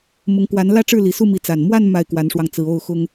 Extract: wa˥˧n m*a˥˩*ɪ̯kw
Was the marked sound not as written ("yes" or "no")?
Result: no